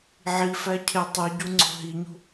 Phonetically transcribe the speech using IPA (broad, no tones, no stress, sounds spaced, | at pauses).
ʕ i f æ cʰ e tˤ i ɟ u ŋ͡ǀ o̤ ɦ i ɲ ṳ